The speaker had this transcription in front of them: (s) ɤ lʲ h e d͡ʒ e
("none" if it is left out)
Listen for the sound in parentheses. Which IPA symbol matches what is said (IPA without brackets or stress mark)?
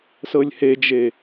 s